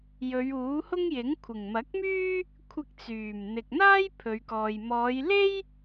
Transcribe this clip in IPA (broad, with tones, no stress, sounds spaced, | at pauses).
j ɵ˨˧ ɥ uː˨˥ h ʊ˥ ŋ j ɪ˨˥ ŋ kʷʰ ɪ˨˩ ŋ m ɐ˨˥ k̚ m yː˥ | kʷʰ ɪ˧ k̚ t͡s yː˨˩ m n̪ ɪ˨ k̚ n̪ aː˥ j pʰ ɵ˨˧ ɥ k ɔː˨ j m ɔː˨˧ j l e˥ j